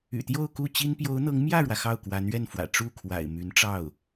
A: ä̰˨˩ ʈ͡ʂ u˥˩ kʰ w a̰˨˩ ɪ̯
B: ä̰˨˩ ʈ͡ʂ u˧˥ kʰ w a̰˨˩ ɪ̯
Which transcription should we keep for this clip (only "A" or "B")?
A